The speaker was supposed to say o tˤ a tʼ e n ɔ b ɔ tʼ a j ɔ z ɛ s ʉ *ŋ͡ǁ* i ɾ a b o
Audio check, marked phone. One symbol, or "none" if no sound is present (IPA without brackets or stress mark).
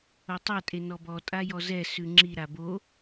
ŋ͡ǁ